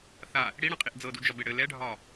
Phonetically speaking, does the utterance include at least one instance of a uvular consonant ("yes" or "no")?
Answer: yes